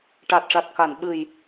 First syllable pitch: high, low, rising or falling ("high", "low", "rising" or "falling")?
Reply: low